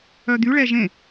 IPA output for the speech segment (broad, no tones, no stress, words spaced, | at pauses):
œd̪yɭɛ ʒẽ